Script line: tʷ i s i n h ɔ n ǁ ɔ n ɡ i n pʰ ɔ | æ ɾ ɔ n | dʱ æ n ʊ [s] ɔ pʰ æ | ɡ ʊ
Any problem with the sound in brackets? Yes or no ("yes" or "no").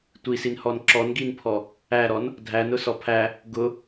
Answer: no